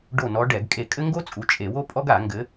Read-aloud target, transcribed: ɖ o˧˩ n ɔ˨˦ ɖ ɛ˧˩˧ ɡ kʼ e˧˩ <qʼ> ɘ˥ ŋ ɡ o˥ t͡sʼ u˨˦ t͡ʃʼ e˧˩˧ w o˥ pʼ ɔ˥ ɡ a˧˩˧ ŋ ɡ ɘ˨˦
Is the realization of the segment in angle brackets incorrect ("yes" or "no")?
yes